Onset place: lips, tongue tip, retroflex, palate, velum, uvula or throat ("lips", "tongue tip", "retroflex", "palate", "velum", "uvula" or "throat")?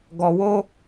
velum